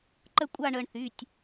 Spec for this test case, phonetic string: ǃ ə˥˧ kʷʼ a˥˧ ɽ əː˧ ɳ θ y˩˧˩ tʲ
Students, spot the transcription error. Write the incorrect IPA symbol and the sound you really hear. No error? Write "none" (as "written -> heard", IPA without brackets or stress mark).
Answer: ɽ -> ɳ